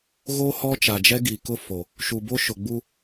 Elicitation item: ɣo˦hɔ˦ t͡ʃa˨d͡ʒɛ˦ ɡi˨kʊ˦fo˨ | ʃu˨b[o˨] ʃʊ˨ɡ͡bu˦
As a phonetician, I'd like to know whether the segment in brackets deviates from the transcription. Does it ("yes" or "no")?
yes